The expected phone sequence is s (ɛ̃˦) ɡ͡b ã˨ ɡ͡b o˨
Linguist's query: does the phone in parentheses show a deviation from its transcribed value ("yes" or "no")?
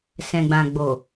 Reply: yes